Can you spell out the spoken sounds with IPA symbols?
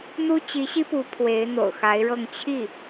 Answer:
n̪ u˥ t͡ɕ i˧˥ ɕ i˥ p u˧˥ pʰ w e˧˥ ɪ̯ n̪ o̰˨˩ ʊ̯ x a˧˥ ɪ̯ ɻ ɤ˥˧ ŋ t͡ɕʰ i˥˩

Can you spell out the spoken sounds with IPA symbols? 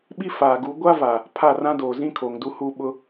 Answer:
ɓ i˦ f aː˨ ɡ u˨˦ ɡʷ a˦ v a˨ | pʰ a˦˨ r ã˦ d oː˨ z ĩ˦ kʰ oː˨ ŋ d u˦ h uː˦ ɓ ʊ˦

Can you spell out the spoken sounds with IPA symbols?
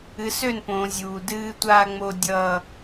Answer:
ɨ˨ s ø˦˨ n p õː˨ zʲ uː˨ d ɨː˦ tʷ aː˦ ŋ͡m o˦ dʲ ʌː˦

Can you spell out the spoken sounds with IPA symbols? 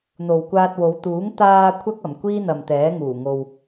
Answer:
n̪ o˨ w kʷ aː˧ t̚ w o˨˧ w t̪ uː˨˥ ŋ t̪ aː˧ kʷʰ ɐ˥ k̚ ɐ˨˩ m kʷ iː˥ n̪ ɐ˨ m t̪ ɛː˨˥ ŋ uː˨˩ ŋ o˨ w

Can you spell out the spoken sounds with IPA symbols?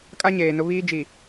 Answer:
kʼ a˦ ɲ eː˨ n ʊ˦ β iː˦ d͡ʒ i˨

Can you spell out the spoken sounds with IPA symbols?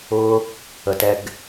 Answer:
ʊ˦ | ə˨ t ɛ˧ ɡ

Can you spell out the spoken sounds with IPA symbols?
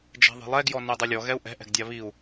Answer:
d͡ʒ ɛ̤ ðˤ e̤ lˠ ɛ ɡ j ɔ n e dˤ e lʲ ɔ ɣ ɛ u̯ ʔ ɛ̤ ʔ ɛ̤ ɡ dʲ a β i u̯

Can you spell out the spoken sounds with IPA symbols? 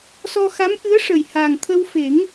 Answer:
s ɔ˧ x a˧˥ m ʔ ɨ˧˥ ə̯ ʂ ə˨˩ j h a˨˩ ŋ t̪ʰ ə˧ w f e˨˩˦ ŋ

